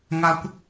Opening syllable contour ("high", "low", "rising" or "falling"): high